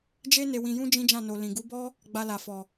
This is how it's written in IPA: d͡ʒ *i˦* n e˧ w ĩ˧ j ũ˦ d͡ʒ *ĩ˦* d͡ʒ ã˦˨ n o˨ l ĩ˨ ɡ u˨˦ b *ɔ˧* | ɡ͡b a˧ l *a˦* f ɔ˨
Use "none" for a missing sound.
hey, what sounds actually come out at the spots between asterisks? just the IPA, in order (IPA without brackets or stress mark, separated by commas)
e˦, ĩ˦, ɔ˦, a˨